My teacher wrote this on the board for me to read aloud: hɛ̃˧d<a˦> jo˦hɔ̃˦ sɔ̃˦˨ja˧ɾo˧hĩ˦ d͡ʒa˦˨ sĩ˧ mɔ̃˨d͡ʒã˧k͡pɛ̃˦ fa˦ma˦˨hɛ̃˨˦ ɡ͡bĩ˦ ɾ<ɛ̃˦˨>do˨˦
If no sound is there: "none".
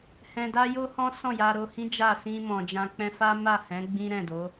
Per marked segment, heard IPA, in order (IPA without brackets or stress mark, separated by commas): a˦, ɛ̃˦˨